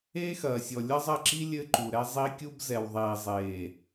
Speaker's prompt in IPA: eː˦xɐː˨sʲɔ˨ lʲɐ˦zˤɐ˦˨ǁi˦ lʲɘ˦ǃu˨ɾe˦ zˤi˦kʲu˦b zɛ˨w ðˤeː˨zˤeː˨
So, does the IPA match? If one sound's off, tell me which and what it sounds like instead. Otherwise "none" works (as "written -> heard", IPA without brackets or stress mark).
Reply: e˦ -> ɛ˦